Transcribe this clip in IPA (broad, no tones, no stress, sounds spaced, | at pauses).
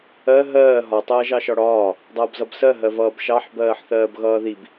ɜ ɦ ɜː ɦ ɒ tˤ ʌː ʒ ɑ ʃ ɒ ɽ ɒː | dˤ ʌː b z ʌ b s ɜ ɦ ɜ v ʌː b ʃ ɑ ħ b ɜː ħ θ ɜː b ɣ ʌː ð i b